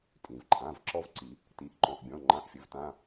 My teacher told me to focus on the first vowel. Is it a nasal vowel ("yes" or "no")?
yes